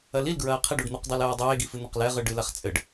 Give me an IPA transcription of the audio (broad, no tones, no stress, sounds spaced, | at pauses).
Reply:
ɐ l i l ɡ ɹ ɐː qʰ i ɖ u ɖ n̪ u q dˤ i l ɐː dˤ eː ɡ i f ɨ n̪ ɐ q l ɛ ʁ ɨ ɖ ɨ l a χ t͡sʼ ɘ ɖ